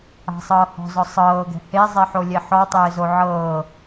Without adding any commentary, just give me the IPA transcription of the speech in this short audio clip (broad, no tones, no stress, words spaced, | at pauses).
a̤sˤɤː hɔ̤zɔ sˤɤːɡɛ̤ hezˤɛħolʲe ħɔtˤɪːzo ʕɤː